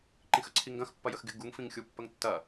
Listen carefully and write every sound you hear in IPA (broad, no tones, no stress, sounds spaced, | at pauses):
ǃ ĩ x ə ǀʰ i ŋ ɡ ɐ̃ x pː ɐ j ə x ɡ ɪ ɡ u ŋ f ĩ ŋ xʲ u pː ə ŋ tː ɐ